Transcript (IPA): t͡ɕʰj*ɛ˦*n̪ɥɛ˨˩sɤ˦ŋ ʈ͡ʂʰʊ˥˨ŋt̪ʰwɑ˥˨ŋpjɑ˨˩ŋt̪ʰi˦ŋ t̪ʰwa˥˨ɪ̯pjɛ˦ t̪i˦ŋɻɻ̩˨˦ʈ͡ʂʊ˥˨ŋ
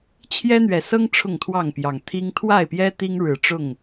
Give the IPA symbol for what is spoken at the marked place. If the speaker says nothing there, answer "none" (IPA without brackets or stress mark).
ɛ˦